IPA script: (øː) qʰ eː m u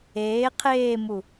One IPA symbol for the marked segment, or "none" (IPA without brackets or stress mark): eː